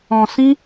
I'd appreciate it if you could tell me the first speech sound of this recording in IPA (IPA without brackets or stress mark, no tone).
ɔ̃